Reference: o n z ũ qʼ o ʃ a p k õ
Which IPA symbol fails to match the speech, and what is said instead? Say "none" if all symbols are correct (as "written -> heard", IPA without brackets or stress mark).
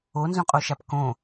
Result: none